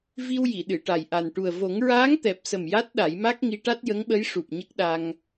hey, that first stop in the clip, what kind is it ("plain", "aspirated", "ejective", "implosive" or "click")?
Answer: implosive